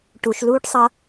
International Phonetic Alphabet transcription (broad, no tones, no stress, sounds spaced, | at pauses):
ʈ u ʃ l uː ʈ sˤ ʌ